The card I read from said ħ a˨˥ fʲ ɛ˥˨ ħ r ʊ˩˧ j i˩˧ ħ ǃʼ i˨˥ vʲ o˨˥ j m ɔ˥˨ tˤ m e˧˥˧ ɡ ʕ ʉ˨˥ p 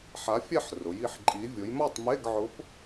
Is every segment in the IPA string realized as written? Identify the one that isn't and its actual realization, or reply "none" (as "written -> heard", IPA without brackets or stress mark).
ʉ˨˥ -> ʊ˨˥